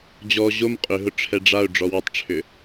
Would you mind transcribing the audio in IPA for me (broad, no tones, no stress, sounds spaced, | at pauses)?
d͡ʑ ɔ ʑ o m qʼ ʏ ɦ ʊ ʈ͡ʂʰ ɛ ɖ͡ʐ a ʊ̯ ɖ͡ʐ ɔ w ʏ tˤ ʈ͡ʂʰ ʏ